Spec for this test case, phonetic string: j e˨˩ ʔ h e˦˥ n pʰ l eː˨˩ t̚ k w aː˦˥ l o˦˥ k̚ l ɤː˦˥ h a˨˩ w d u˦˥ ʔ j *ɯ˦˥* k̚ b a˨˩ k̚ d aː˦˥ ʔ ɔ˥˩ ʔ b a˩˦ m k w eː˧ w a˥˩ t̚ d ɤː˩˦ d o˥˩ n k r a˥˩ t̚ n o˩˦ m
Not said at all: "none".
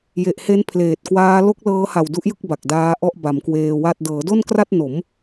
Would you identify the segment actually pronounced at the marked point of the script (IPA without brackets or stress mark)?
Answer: ɯ˥˩